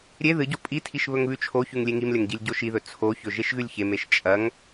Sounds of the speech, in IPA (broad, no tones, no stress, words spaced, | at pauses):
ɾʲe ðɨɟo pʼitʰiʃ βɵŋβʉt͡ʃʰoçʉŋ lʲeŋimlʲɐŋ ɟilʲɟoʃiðɵ t͡sʰoçɵ ʒeʃɣʉlʲçemeʃ t͡ʃʼɐŋ